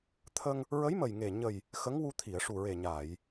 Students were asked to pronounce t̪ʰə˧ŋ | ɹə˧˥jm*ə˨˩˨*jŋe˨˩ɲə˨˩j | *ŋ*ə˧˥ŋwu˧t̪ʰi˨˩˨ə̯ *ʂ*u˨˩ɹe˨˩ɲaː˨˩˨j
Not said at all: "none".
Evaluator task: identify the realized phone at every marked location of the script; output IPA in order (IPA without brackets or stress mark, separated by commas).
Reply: ə˨˩, x, ʂ